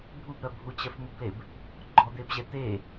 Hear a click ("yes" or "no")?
yes